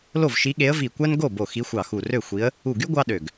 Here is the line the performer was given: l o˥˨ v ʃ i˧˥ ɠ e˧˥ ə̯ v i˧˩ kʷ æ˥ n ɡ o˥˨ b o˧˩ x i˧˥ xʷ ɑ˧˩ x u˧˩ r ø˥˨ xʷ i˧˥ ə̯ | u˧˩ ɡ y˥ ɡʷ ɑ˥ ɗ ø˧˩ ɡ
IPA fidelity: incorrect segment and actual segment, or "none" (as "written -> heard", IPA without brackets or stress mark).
none